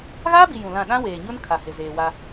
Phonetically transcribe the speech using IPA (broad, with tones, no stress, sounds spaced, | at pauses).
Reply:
ɣ aː˦ b i˨ j ũ˨ l ã˦˨ ɗ ã˦ w eː˨ ɲ ʊ˦ n kʰ a˨ h ɪ˨ z eː˨ w a˦